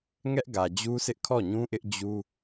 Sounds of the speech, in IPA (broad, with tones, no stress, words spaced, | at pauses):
ŋɛ˦ʔɡä˨d͡ʑu˦sʰɪ˦ʔ kʰɔ˦˨ɲũ˦ʔɪ˦ʔ d͡ʑu˦